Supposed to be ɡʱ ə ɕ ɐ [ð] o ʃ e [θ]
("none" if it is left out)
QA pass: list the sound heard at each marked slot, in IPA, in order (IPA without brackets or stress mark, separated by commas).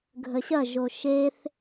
ʒ, θ